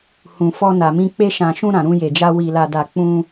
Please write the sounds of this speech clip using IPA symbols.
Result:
h ũ˨ f ɔ˧ n a˨ m ĩ˧ k͡p e˧ ʃ ã˨ ʃ ũ˧ ɾ ã˨ ɾ ũ˧ j e˨ d͡ʒ a˧ w i˨ l a˨ d a˨ k͡p ũ˧

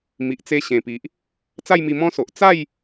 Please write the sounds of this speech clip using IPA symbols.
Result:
m i˨ ʔ t͡s e˧ ɕ ẽ˨˩ p i˨ ʔ | t͡s a˥˧ j m i˧ m ɔ̃˦ s o˨ ʔ t͡s a˥˧ j

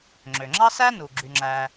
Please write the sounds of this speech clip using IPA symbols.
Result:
ŋ͡ǁ ø˩ ŋ͡ǁ ɑ˥ s æ˥ n u˩ ɡ͡ǁ y˨ ŋ͡ǁ æ˨

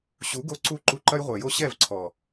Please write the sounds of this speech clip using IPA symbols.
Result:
ɕ u˨˦ ɡ o˧ ǀ u˦ ǃ u˧ ǃ ɐ˦ j ʁʷ ɛ˨ j o˦ ɕ ɛ˦˨ v ǀʰ ɔ˨

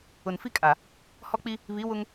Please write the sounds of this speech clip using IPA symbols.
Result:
ʊ˨ n f i˦ kʼ a˨ | h ɔ˦ k͡p i˦ | β i˨˦ w ʊ˦ ŋ

